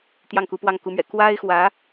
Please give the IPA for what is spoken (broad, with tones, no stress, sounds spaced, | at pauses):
t̪ j ɑ˥˩ ŋ k u˧˥ p w ɑ˥˩ ŋ k u˧˥ m ɥ ɛ̰˨˩ k w a˥ ɪ̯ x w ä˧˥